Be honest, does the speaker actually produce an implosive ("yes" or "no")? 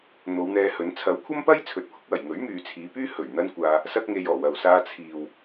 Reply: no